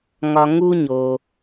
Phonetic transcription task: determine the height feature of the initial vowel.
low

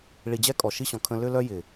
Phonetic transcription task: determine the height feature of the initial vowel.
high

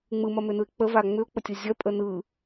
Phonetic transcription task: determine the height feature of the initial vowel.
high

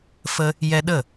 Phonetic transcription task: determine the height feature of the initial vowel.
mid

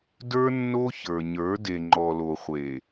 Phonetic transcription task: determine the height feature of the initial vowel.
mid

